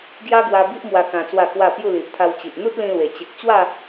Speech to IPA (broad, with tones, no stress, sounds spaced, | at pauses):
ɡ j a˦ ɡ w a˧ b i˦ ʔ m w a˧ k ã˧ t͡s w a˥˧ k w a˥˧ p j u˥˧ l i˨ ʔ t̪ʰ a˧ w t͡ɕ i˨ ʔ n̪ u˦ t̚ l ĩ˧ l w e˨˩ t͡ɕ e˨ k̚ t͡ɕ w a˥˧